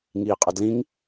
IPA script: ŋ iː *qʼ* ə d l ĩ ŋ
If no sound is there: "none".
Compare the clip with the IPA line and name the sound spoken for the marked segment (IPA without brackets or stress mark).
qʼ